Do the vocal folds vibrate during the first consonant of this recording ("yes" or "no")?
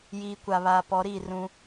yes